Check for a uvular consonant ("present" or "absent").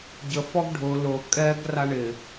absent